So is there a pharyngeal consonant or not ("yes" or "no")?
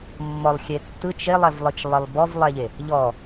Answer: no